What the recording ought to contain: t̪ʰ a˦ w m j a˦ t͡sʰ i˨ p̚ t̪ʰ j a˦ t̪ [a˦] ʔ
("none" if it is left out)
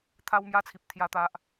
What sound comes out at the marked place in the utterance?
a˦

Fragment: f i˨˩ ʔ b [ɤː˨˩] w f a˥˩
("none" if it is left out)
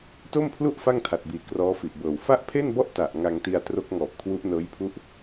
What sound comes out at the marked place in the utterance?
ɤː˨˩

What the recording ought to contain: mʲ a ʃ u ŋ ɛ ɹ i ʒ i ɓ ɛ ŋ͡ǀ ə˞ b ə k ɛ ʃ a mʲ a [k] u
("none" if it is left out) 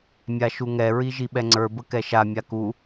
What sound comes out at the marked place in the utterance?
k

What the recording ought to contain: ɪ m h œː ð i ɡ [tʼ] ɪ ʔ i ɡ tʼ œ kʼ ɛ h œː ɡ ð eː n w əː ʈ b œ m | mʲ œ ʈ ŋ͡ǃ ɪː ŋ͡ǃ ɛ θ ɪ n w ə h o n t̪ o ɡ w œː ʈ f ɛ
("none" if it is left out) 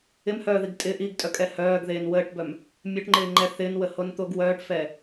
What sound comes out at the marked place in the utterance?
tʼ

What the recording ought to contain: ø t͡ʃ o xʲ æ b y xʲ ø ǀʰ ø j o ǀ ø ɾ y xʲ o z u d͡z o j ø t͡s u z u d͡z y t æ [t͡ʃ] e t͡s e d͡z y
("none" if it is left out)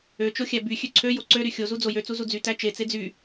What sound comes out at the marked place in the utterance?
t͡ʃ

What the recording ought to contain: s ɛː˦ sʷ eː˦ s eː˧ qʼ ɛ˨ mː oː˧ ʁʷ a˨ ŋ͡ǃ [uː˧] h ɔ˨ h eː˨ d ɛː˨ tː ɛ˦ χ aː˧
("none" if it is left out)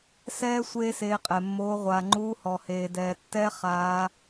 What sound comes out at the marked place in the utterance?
uː˧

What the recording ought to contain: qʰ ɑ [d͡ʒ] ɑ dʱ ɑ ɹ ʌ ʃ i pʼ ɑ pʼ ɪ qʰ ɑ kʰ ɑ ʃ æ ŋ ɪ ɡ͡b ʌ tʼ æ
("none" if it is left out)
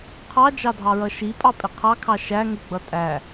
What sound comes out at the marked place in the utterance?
d͡ʒ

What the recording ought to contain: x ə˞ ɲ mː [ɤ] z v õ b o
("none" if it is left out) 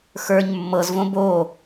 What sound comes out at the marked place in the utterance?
ɤ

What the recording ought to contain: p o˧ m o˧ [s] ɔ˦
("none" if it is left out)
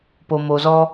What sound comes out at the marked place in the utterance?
z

